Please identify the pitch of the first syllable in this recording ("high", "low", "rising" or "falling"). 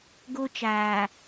high